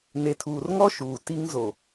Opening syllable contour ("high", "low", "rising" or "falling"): low